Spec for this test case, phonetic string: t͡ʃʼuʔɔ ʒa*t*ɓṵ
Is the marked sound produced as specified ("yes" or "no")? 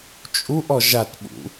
yes